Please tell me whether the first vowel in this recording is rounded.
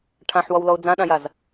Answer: no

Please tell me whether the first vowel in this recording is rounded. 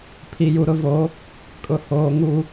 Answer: no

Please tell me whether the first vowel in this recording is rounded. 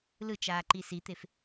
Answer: no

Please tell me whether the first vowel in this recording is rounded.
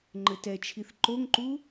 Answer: no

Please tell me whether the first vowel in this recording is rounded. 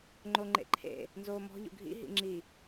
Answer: yes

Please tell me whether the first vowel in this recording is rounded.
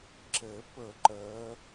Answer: no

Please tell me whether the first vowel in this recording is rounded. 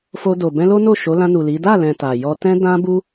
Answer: yes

